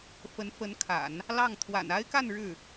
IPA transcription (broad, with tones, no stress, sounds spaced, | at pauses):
f ə˧˥ n f ə˧˥ n kʰ a̰˨˩˦ n | l ɑ˥˩ ŋ t̪ʰ w a̰˨˩ n a˥ ɪ̯ k a˥˧ n ɻ ɻ̩˥˩